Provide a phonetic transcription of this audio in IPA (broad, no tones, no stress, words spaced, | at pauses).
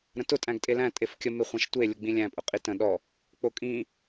ɾə̃tʊ tʼæ̃ɡtʼelæ̃ tʼefkʲə meχʷæ̃ʃtʷe lʲʊɡ͡bĩlʲæ̃ pʼʊqʼitə̃ ɗɔ | k͡pokʼĩ